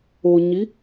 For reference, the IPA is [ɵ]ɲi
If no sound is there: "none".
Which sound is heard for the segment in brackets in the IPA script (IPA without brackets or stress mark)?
o